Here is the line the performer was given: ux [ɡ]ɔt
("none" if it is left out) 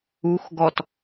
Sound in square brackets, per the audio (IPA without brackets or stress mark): ɡ